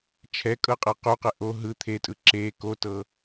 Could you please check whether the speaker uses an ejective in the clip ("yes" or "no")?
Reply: yes